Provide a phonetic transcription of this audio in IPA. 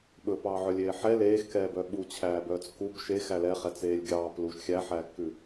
ɓ ɵ p ɑː ʕ œ lʲ eː ħ ɛ l eː x k ɛː b œ ɓ u t͡ɕʰ æː b œː t͡s k u b ʃ e x æ l ɛ χ ɛ t͡s eː lʲ ɡʲ ɑː p l u ʃ xʲ æ ħ æː kː ʉ

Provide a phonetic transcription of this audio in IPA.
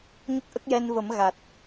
ɲ ə˦˥ k̚ ʔ ə˦˥ k̚ j ɛ˧ n v ə˨˩˦ m ɣ a˨˩ t̚

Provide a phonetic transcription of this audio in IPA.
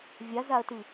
vʲ a z a ɐ̯ t ɯ

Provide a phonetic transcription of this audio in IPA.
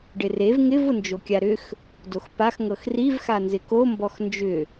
ɖ ɪ r e v ŋ ɪ v ʊ n d͡ʒ o kʲ a ɾ ʏ x | d o x p a x ŋ ɤ x r i v x a n z ɪ k o m b ɔ x n d͡ʒ ʏ

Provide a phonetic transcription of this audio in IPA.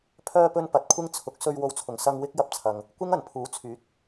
pʰ œː˧ p ɵ˧ n p ɐ˨ t̚ kʷʰ ɪ˥ ŋ t͡sʰ ʊ˨˥ k̚ s ɵ˧ ɥ w o˧ w t͡sʰ ʊ˨˩ ŋ s ɐ˧ ŋ w ɪ˥ k̚ j ɐ˧ p̚ t͡sʰ ɐ˨ ŋ | kʷ ɪ˥ ŋ ɐ˨˩ n pʰ uː˨˥ t͡sʰ yː˨˥ t̚

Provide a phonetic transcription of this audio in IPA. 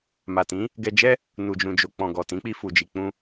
m a˨ t ĩ˨˦ | ɡ ɛ˧ d͡ʒ ɛ˦ | n u˨ d͡ʒ ũ˨ d͡ʒ o˨ k͡p ɔ̃˨ ɡ ɔ˨ t ĩ˨˦ k͡p i˧ f u˨ d͡ʒ i˨ k͡p ũ˧

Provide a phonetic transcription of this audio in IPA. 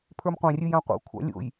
pʰ ə˞ m qʷ ã rʲ ɨ j ã qʷ a̰ kʷʰ ɑ̰ lʲ o̰ j

